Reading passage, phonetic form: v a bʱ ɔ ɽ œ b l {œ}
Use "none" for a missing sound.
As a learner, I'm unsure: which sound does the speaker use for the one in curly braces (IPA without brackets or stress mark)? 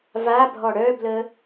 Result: ə